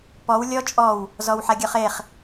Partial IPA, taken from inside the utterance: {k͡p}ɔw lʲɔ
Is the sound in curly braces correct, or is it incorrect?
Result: incorrect